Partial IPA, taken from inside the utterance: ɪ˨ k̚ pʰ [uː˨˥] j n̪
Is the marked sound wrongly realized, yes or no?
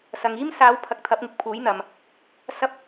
no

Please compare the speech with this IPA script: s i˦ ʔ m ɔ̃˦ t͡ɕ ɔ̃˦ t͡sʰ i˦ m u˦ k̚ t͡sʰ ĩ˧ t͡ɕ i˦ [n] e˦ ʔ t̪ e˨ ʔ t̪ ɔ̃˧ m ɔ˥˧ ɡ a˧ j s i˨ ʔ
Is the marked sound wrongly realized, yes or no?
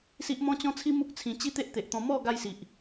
yes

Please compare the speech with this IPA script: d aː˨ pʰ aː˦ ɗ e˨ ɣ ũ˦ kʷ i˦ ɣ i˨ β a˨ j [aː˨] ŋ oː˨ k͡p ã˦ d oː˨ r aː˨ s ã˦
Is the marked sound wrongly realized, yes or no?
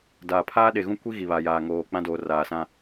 no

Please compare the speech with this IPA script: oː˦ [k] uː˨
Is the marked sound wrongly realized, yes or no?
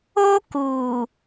no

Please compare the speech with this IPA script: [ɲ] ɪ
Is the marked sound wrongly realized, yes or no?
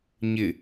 no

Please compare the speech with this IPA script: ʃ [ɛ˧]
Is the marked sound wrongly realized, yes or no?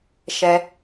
no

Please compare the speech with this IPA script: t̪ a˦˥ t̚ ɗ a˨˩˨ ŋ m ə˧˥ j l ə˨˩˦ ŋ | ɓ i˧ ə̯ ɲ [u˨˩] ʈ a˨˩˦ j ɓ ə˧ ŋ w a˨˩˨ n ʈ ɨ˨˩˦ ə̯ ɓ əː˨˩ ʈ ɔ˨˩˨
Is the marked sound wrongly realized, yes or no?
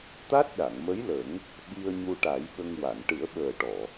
yes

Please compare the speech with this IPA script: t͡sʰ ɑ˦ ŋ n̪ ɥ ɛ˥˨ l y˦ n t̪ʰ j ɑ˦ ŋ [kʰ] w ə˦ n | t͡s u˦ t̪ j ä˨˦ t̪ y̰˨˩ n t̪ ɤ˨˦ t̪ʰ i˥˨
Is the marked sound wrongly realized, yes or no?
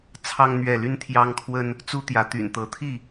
no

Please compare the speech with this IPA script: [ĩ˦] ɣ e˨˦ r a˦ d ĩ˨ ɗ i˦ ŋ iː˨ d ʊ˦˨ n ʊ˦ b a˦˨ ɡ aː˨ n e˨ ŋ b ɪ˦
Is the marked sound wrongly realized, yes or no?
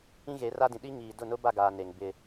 no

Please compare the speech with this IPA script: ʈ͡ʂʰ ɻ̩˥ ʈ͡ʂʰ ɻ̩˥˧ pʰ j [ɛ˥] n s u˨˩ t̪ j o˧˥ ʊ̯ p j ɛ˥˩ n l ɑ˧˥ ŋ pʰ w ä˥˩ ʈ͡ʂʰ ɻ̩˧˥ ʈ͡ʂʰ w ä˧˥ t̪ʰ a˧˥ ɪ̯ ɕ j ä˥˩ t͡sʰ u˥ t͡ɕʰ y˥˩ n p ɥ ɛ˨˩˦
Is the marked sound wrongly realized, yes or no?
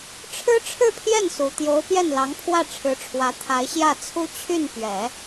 yes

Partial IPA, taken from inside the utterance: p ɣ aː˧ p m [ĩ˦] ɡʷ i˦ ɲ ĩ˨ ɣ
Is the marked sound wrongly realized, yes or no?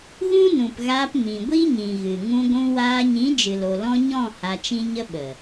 yes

